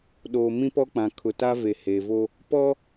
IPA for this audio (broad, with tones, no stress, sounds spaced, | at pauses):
ɗ oː˨ m ĩ˦ p ɔ˦ k͡p ã˨ kʰ ʊ˨ t a˦ v e˨ h e˨ v o˦ | p ɔ˦